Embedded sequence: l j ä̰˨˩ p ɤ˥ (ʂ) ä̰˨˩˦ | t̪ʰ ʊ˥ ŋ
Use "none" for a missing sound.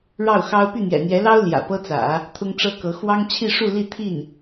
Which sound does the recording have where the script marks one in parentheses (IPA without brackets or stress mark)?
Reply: t͡s